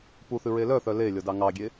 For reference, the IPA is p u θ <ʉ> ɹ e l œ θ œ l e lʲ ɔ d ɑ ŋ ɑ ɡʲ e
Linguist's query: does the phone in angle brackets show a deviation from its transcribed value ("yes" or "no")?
no